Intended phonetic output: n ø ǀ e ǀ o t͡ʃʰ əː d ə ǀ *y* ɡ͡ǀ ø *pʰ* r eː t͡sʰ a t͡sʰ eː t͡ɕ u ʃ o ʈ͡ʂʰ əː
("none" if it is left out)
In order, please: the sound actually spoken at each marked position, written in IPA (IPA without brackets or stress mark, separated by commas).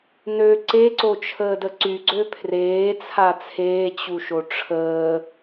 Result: y, pʰ